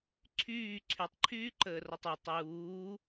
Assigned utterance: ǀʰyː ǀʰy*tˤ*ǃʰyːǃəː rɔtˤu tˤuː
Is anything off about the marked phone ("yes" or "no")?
no